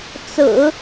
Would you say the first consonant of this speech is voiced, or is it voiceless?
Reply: voiceless